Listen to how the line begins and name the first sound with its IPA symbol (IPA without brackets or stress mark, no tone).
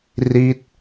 r